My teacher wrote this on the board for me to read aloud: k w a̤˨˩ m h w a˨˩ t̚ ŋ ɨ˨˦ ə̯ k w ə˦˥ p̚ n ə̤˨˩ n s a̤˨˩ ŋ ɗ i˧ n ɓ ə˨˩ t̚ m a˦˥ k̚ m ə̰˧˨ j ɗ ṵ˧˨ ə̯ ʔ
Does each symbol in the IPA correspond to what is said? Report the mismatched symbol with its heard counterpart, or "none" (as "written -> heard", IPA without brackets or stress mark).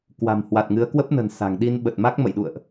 none